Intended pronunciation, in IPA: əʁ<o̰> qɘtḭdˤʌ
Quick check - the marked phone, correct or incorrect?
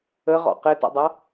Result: incorrect: ɔ̰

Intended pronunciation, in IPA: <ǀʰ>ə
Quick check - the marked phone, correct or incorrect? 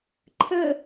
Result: incorrect: ǃʰ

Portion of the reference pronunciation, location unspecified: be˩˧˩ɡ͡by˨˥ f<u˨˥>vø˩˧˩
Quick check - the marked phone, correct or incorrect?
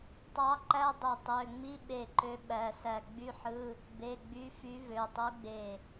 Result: incorrect: y˨˥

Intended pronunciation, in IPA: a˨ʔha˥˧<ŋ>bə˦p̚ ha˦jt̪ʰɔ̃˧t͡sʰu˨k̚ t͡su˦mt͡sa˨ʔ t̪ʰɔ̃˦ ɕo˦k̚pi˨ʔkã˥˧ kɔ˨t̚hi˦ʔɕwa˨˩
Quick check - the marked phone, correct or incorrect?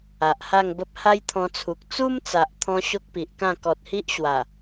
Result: correct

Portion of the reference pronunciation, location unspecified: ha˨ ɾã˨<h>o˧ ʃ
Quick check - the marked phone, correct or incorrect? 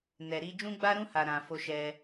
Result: incorrect: f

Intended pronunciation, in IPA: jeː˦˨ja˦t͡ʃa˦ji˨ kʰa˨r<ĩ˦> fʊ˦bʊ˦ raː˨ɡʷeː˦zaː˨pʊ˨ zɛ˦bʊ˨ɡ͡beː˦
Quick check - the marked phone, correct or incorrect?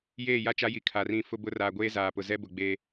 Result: correct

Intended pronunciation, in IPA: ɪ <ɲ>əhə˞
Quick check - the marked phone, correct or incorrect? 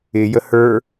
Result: incorrect: j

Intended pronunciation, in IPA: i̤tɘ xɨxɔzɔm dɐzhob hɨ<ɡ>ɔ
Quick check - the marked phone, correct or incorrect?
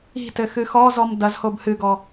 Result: correct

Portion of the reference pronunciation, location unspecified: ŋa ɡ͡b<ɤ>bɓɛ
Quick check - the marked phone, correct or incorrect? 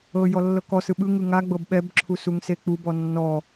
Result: correct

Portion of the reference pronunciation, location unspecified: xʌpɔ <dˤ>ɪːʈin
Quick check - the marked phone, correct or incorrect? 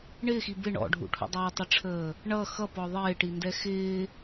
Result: incorrect: ðˤ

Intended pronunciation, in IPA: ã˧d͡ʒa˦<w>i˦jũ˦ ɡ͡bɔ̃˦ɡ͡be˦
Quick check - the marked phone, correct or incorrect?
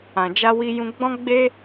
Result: correct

